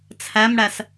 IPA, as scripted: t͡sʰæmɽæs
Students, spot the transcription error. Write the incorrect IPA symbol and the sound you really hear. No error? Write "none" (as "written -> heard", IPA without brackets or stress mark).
none